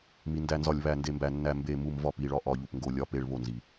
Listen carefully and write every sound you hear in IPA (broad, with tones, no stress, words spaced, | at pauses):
mi˩ ndæ˧˩˧nzɒ˧˩˧lʲ βæ˧˩˧nde˧˩mbæ˧˩˧ nːæ˧˩˧ mbe˧˩˧mu˧˩˧m vɒ˧˩pi˧˩˧ɭɒ˧˩ ʔɒ˧˩˧ʎu˩pŋɡo˧˩˧ lʲɒ˧˩pe˧˩˧ɭ βo˩nzi˩